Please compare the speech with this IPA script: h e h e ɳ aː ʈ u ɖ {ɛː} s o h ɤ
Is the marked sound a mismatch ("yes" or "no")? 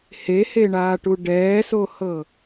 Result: no